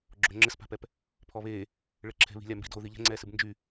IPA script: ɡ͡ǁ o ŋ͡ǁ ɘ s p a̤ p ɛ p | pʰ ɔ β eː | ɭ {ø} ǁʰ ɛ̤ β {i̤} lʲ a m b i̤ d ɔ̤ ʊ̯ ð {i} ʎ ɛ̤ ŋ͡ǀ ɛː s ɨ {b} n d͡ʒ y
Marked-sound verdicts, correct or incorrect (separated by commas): incorrect, correct, correct, correct